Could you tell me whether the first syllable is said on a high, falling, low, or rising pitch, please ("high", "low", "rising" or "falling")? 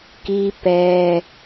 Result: high